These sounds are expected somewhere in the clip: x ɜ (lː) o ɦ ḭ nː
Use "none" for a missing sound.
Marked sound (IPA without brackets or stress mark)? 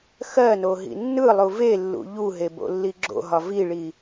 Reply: n